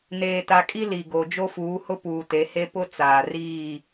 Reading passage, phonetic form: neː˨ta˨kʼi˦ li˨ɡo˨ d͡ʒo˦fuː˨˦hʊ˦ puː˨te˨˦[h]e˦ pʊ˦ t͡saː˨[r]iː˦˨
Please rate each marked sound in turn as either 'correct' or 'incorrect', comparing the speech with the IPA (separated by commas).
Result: correct, correct